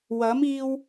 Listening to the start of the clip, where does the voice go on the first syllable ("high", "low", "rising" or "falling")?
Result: rising